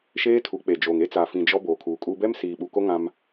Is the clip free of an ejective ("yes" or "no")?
no